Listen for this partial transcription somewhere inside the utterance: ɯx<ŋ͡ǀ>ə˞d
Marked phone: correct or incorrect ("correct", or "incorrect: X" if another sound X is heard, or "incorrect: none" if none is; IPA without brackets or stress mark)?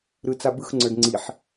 correct